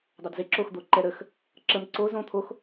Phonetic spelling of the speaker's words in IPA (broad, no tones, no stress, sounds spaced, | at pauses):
dˤ ɑ d z e ǁ o x d̪ o ǃ ɛ ɾ ə x | ǁ ə m ǀ o z õ t̪ʰ o x